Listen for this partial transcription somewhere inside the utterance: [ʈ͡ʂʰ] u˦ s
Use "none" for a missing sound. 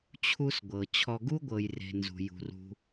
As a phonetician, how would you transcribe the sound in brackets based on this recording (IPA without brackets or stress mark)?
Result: t͡ɕʰ